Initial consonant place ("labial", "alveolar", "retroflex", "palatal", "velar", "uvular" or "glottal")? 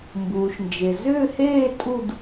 labial